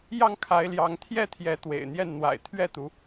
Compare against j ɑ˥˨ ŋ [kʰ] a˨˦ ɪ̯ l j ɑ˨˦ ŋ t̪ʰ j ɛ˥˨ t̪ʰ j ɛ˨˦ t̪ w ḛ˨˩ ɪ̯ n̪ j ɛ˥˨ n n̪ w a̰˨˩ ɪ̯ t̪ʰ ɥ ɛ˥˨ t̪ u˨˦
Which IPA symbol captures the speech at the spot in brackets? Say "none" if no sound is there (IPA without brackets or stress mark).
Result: kʰ